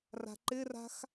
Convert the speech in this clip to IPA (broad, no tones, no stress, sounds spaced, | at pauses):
r a̤ ǃ ɪ r a̤ x